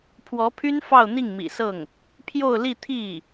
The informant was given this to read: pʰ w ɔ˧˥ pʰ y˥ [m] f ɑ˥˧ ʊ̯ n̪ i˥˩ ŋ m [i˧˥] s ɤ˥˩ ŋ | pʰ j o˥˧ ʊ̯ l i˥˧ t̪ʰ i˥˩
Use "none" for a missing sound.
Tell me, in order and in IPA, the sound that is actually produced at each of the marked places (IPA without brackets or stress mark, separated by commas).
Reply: n, ḭ˨˩